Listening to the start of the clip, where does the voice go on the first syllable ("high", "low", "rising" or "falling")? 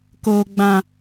low